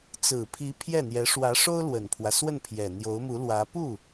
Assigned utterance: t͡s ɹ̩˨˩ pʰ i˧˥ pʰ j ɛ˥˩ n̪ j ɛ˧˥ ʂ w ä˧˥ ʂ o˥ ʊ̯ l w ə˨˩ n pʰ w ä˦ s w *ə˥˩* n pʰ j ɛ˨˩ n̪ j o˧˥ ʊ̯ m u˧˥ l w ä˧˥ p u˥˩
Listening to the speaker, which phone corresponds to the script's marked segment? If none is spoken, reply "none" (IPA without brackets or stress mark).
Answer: ə˥˩